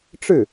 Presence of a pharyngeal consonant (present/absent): absent